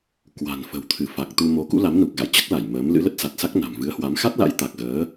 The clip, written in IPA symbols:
k w a̤˨˩ n f ə̤˨˩ w t̪ʰ ɨ˧˩ f a˨˩ k̚ t̪ u˧ m o˨˦ k ṵ˧˥ l a˨˦ m n u˨˩ k̚ ɣ a̰˧˨ j t͡ɕ ə˦˥ t̚ l a˧˩ j m əː˨˦ m l ɨ̰˧˥ l ə˦˥ t̚ s a˨˩ t̚ s a˦˥ k̚ n a̤˨˩ m v ɨ˨˦ ə̯ h w a˨˦ m x a˦˥ t̚ l a̰˧˥ j t̪ a˨˩ k̚ ɣ əː˨˦

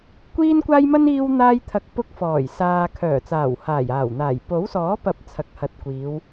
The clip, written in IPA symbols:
kʷ iː˥ n kʷ aː˥ j m ɐ˥ n iː˥ w n̪ aː˥ j t̪ʰ ɐ˧ k̚ p ʊ˧ k̚ f ɔː˨˩ j s aː˨ kʰ œː˨˩ t͡s aː˨˩ w h aː˨˩ j aː˨˩ w n̪ aː˨˩ j p o˨˥ w s ɔː˨˥ p ɐ˨ p̚ t͡sʰ ɐ˨ k̚ h ɐ˨ t̚ kʷ iː˨˧ w

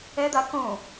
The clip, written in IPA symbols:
ɛ d̪ a k õ

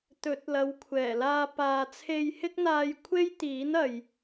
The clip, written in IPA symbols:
t̪ ɵ˨˥ t̚ l ɐ˨˧ w kʷʰ ɛː˨˩ l aː˧ p aː˨ t͡sʰ e˧ j h ɪ˥ k̚ n̪ aː˧ j kʷʰ e˥ j t̪ iː˨˥ n ɐ˨ j

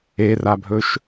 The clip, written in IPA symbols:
e r a bʱ ɵ ʃ

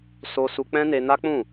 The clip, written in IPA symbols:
s o˧ s u˧ k͡p ɛ̃˦ n e˧ n a˦ k͡p ũ˦˨

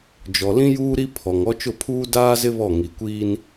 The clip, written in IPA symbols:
d͡ʒ ɔ˨ l ĩ˦ j uː˦ ɾ i˦ pʰ ɔ˨ ŋ ɔ˦ t͡ʃ ʊ˦˨ pʰ uː˦ d aː˦ z ɪ˦ β ɔ˦˨ ŋ i˨ kʷ iː˦ n

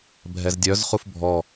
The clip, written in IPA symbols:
bʱ ɛ z dʲ œ z χ u f bʱ ɔ

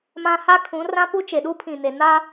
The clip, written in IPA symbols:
m ã˦ h a˦ kʰ ũ˨˦ r ã˦ p u˦ t͡ʃ e˨ ɗ u˦ pʰ ĩ˨ n e˨ n a˦

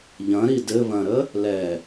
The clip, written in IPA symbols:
ʎ ɐ̃ ɾ i d ɘ β ɐ̃ ɾ ə | l ɛ

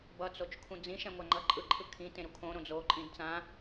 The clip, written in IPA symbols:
b ʌ t͡s o t͡ʃ kʰ ũ d͡z ĩ ʃ ɛ̃ ŋʷ a ŋ͡ǃ ʌ ǃʼ ɯ ǃʰ ɯ kʰ ĩ t ẽ ɾ u kʰ õ ɾ õ d͡z o ǃʼ ĩ d t͡s ã

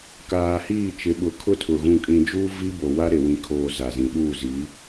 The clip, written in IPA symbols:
k aː˨ h iː˦˨ t͡ʃ ɪ˨˦ ɓ ʊ˨ kʰ ʊ˦ tʰ ʊ˨ ɣ ũ˨ kʼ ĩ˨ d͡ʒ uː˦ v i˦ b o˨ w a˦ ɾ e˨ w ĩ˨ kʰ oː˨ z a˨ z ĩ˨ ɗ uː˦˨ z i˨˦

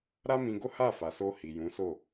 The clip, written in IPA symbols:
ɾ a˦ m ĩ˧ ɡ o˦ h a˦˨ f a˨ s o˧ h i˨ j ũ˨˦ s o˦˨

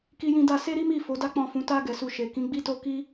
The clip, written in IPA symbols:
k i˧ j ĩ˧ d a˧ s e˦ ɾ i˦ m i˦˨ f o˨˦ d a˦ k͡p ɔ̃˦˨ f ũ˨˦ t a˧ ɡ ɛ˨ s u˨ ʃ e˨ k ĩ˨˦ ɡ͡b i˦ t o˦ k i˦

